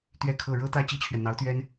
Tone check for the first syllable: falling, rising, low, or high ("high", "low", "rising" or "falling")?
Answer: falling